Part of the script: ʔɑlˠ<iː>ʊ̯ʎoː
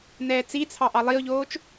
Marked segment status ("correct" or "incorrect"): incorrect